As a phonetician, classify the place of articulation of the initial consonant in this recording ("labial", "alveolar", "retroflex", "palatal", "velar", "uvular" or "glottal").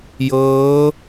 palatal